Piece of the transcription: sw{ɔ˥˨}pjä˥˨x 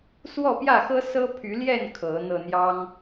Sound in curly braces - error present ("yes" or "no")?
no